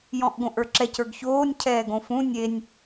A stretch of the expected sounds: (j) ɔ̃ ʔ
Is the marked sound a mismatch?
no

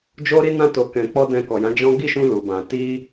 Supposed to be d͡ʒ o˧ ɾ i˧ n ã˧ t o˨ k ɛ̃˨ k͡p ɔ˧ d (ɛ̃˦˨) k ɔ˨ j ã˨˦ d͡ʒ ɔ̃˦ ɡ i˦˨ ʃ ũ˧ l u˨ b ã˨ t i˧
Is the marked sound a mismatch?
yes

